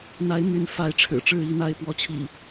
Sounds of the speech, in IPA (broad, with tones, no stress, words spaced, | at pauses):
n̪a˨˦ɪ̯my˨˦n fa˨˦ɪ̯ ʈ͡ʂʰɻ̩˨˩ʈ͡ʂɻ̩˥˨i˥˨n̪a˥˨ɪ̯ pwɔ˨˦t͡ɕʰḭ˨˩